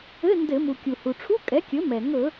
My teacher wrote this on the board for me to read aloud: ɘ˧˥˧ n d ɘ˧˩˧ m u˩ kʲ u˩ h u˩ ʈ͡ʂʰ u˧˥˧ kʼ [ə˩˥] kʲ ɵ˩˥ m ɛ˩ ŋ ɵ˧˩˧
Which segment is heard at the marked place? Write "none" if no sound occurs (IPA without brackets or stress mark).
ɛ˩˥